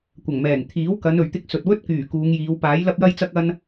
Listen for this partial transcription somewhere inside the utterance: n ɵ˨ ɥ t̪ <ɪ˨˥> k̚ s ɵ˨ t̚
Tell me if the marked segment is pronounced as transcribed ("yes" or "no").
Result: no